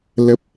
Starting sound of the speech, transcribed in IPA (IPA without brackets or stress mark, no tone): l